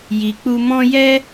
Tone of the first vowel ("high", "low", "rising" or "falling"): low